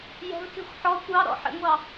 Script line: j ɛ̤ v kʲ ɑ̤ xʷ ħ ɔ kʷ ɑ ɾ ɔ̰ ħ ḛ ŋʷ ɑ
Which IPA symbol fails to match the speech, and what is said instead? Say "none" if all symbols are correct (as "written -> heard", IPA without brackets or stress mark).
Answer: none